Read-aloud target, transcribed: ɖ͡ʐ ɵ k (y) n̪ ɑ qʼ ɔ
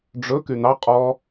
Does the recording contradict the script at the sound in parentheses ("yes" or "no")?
no